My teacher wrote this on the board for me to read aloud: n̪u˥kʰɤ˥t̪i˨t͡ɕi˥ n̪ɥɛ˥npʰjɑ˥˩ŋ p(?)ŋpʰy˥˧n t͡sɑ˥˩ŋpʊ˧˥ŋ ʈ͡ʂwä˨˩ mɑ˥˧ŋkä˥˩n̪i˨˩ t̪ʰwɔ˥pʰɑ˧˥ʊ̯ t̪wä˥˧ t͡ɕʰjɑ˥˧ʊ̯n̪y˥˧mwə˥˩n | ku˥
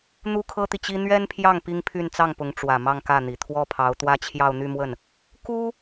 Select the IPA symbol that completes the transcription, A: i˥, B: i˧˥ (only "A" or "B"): A